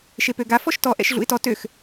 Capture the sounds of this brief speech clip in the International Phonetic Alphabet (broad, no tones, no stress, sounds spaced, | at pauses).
ʃ e p ø ɡ a f ɔ ʃ t ɔ ʔ ɛ̰ ʃ ɮ ṵ ɪ̯ t ɔ t ø x